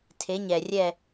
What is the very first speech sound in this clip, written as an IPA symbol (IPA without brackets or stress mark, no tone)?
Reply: tʰ